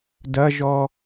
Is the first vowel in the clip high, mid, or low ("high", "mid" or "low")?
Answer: low